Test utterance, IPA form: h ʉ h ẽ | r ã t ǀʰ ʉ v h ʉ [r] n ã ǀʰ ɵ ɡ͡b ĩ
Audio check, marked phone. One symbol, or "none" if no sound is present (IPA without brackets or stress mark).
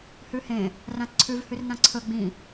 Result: r